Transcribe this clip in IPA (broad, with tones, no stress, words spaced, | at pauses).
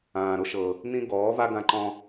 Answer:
ãː˨ɾʊ˦ʃɤ˨ | nĩ˦ ɡɔː˨˦va˦ɡã˧ǃɔ̃˧